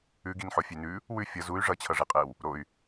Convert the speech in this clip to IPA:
ʉ ɡ i n ħ o fʲ ʉ n ʉ | w ʉ fʲ ʌ z u y̯ ʐ ʌ t͡ɕʰ ʌ ʐ i qʼ e w | ɾ o y̯

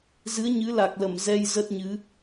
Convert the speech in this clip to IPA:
z ɨ˨˦ ə̯ ɲ ɨ˨˦ l a˨˩ k̚ l ə˧˩ m z ɛ˧ j z ə˦˥ t̚ ɲ ɨ˨˦

